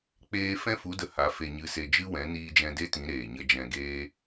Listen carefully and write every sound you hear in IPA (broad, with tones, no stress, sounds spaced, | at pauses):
k͡p eː˦ f ɛ̃˦ f u˨˦ d ə˨˦ h a˨˦ f e˧ ɲ ɨ˧ s e˧ d͡ʒ ɨ˦ w ɛ̃˨˦ n iː˧ d͡ʒ ɛ̃˧ d e˦ t ĩ˨˦ ɾ eː˨ ɲ ə˧ d͡ʒ ɛ̃˧ ɡ eː˦